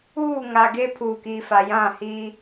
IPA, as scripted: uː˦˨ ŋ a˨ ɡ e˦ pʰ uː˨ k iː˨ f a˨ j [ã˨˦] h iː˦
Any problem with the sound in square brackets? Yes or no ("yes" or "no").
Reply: yes